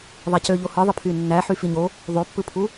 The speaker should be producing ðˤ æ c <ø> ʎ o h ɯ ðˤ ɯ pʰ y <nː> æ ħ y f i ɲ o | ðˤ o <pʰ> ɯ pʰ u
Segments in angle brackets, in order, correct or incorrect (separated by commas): correct, correct, incorrect